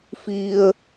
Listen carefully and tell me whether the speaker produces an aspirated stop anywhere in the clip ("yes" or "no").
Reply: no